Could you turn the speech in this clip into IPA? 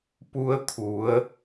p u˧ ə̯ t̪ʰ u˩˧ ə̯

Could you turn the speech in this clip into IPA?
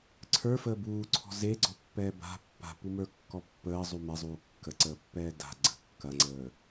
ǀʰ ə˞ f əː b uː ǀʰ ɔ̤ z e ɡ͡ǀ ɔ pː ɛː b a̤ pː a̤ p u m ə˞ kː ɔ pː əː zˤ u m ɛ zˤ uː kː ə ǀ əː pː ɛː d a̤ ɡ͡ǀ ə̤ kː ɐ ŋ͡ǀ əː

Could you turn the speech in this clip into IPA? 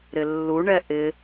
ɾ ɪ lː u ɳ ɛ ʔ ɪ

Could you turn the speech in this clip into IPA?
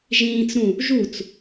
ʒ ĩː t͡s ɾ ũ | ʒ u t͡s

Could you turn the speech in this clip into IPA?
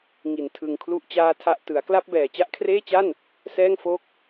ŋ i˨˩ n tʰ ɯ˨˩ ŋ kʰ l u˥˩ ʔ t͡ɕ aː˥˩ tʰ a˥˩ ʔ t ɯ˩˦ a̯ k l a˥˩ p̚ b ɛː˨˩ t͡ɕ a˦˥ ʔ kʰ r eː˥˩ t͡ɕ a˥˩ n | s ɛː˥˩ ŋ f o˥˩ k̚

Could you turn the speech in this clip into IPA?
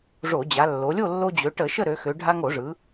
ʐ o˧˩˧ d͡ʑ a˩˧ lː o˩˧ lʲ o˥˨ lː o˧ d͡ʑ ø˩˧ ʈ ə˧˩˧ ʃ ə˥˨ ɾ ø˩˧ x ø˩˧ ɖʱ a˧ ŋ o˧˩˧ ʐ ɯ˩˧

